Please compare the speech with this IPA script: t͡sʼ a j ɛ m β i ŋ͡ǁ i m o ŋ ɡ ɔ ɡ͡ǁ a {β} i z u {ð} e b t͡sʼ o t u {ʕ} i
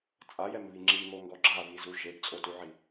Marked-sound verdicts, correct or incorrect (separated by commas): correct, incorrect, correct